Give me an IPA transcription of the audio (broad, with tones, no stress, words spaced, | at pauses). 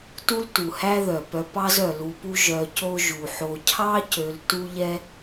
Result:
tu˦ltu˩hæ˦ðœ˩ pœ˨pɑ˦z œ˩lu˨pu˦ ʒœ˨co˦ ʒu˩ħo˨ cʰɑ˥cø˨l tu˦ʎɛ˦